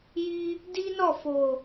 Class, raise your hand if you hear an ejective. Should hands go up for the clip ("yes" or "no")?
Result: no